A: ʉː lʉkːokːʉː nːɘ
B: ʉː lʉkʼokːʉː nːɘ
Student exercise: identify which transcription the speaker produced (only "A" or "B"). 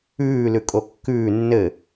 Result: B